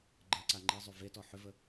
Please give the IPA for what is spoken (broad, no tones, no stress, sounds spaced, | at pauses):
ɡ͡ǃ ɜ ǀ a ŋ͡ǃ i zˤ y v e t ɔ ħ ʏ v ə